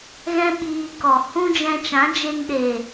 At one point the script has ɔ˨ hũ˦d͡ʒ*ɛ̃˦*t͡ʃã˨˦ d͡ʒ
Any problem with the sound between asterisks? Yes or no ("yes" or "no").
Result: yes